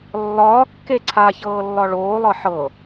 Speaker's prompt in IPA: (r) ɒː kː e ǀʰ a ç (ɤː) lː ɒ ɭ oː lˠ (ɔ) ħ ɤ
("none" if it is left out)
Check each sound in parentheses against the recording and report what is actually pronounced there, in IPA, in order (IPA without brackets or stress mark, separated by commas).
lː, ɤː, ɤ